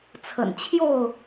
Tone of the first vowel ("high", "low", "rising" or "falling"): low